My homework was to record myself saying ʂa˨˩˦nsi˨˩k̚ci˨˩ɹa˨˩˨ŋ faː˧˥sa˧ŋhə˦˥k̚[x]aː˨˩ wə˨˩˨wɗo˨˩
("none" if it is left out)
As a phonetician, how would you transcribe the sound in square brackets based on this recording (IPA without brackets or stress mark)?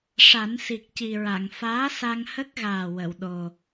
ɣ